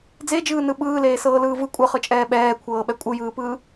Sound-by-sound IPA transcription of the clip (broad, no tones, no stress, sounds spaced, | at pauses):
d͡z e d͡ʒ ɯː n ɯ ɓ ɯː l eː s ɤː l ɯː v ɯ kʷʼ ɤ χ ɯ t͡ʃʼ ɛː ɓ ɛː kʷʰ ɤː ɓ ɛ kʷʼ ɯ j ɯː p ɯː